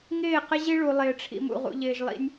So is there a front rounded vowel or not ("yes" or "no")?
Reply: no